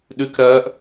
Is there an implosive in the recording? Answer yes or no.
yes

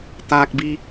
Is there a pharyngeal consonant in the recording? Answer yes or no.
no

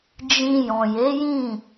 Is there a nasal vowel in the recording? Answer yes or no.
yes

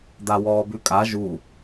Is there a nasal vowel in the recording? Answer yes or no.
no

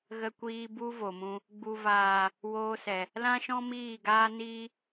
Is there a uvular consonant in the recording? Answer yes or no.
no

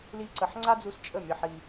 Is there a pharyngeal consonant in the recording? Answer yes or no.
yes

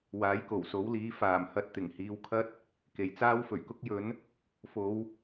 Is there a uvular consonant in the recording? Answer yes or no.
no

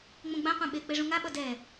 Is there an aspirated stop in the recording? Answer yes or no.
no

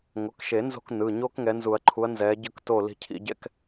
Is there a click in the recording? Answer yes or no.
yes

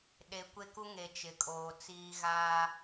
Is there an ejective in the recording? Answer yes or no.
yes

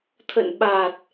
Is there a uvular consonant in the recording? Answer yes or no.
no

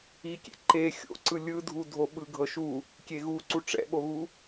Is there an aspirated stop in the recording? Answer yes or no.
no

